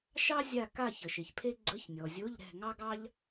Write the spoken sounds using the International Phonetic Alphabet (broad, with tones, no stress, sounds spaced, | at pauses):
ʃ ɑ˥ zʲ a˦˨ k a˦˨ ç ə˩ ʃ e˩ ç pʰ e˥ ɡ͡ǀ ə˧˥˧ ç nʲ ɔ˩ zʲ o˧˥˧ ʎ ɾ ɛ̤˦˨ ŋ ɑ˥ ɡ ɑ˥ ʎ